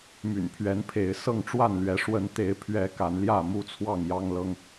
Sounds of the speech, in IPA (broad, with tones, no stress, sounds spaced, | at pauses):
m y̰˨˩ n pʰ ɥ ɛ˨˦ n pʰ e˨˦ ɪ̯ s ɤ˥˨ ŋ ʈ͡ʂ w a˥˨ n l ɥ ɛ˨˦ ʂ w ə˨˦ n t̪ e˨˦ ɪ̯ pʰ ɥ ɛ˨˦ k a˨˦ n l j ä˥˨ m u˦ t͡sʰ w ɑ˥˨ ŋ j ɑ˦ ŋ l ɤ˦ ŋ